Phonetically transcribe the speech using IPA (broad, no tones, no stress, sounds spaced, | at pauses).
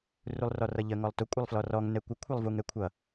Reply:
r u lˠ r ɔ r ʌ ʎ ə ŋ ɔ lˠ t ʊ kʷʼ ɪ lˠ f l ɔ r ɔ ŋ n ɛ kʷ ə kʷʰ ɛ lˠ v u ŋ ɛ kʷʰ ʌ